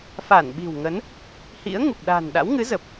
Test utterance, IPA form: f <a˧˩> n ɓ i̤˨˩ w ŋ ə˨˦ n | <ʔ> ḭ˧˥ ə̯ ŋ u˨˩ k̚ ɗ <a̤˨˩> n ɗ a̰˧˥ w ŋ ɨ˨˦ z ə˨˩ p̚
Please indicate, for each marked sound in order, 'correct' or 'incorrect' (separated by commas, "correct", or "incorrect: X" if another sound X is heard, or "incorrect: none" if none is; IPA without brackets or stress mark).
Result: correct, incorrect: h, correct